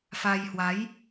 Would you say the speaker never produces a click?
yes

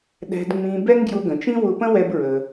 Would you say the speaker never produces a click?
yes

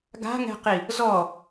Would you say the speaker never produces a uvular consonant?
no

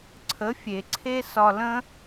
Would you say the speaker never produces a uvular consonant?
yes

